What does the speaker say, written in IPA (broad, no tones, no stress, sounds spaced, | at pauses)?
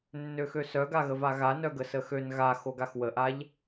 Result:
nː ø x ø s œ ɡ a ɣ ə v a ɣ a n œ ɡ ə s ə x ø n ɣ a x o ɡ a x w ə ʔ a ʎ